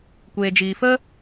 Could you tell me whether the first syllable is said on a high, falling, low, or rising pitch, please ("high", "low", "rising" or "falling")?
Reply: low